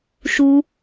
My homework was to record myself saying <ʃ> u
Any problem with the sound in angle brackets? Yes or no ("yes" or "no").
no